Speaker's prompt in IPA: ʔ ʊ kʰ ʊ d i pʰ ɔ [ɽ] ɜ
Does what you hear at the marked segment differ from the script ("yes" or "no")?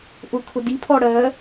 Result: no